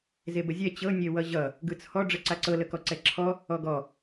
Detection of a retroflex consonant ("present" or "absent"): present